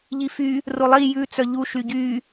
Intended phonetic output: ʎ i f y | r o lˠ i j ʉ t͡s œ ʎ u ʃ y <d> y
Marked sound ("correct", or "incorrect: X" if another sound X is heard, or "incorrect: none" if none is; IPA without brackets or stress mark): incorrect: ɟ